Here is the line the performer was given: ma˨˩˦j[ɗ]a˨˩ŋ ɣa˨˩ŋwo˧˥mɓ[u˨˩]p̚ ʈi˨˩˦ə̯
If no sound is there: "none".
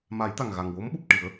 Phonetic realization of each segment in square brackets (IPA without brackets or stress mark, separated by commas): t̪, u˨˩